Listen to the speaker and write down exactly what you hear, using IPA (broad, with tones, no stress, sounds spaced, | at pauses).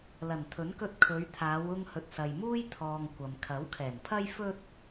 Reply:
l ɐ˨˩ n t̪ʰ ɵ˨˥ n k ɵ˧ t̚ kʰ ɵ˨˧ ɥ t̪ʰ aː˨˧ w ʊ˧ ŋ h ɵ˨ t̚ s ɐ˨ j m uː˥ j t̪ʰ ɔː˧ ŋ kʷ ɐ˨ m kʰ ɐ˨˥ w kʰ ɛː˨˩ n pʰ ɐ˥ j f ɵ˥ t̚